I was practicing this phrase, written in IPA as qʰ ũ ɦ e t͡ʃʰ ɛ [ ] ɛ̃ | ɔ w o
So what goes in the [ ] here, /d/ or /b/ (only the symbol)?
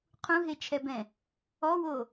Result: b